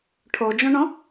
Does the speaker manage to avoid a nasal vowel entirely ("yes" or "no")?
no